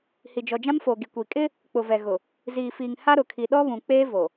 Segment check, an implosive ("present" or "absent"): present